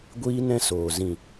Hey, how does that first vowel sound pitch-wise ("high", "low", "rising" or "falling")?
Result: high